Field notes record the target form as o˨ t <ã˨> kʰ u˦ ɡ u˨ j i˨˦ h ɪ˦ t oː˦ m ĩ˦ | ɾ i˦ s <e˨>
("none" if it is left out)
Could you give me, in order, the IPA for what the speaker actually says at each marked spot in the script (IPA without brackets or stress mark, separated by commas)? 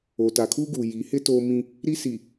a˨, i˨